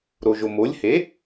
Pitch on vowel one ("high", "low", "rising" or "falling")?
low